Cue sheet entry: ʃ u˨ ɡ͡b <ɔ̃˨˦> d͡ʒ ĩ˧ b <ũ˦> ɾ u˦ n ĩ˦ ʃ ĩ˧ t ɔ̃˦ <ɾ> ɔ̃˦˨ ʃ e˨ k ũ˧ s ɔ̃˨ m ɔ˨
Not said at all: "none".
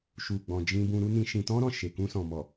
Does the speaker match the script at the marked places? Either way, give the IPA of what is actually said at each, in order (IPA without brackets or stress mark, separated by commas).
ɔ̃˨, ũ˧, ɾ